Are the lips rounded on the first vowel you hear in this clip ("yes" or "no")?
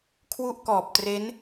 yes